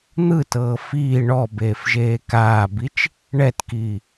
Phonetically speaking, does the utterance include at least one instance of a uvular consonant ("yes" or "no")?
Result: no